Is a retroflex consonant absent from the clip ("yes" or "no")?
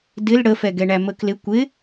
no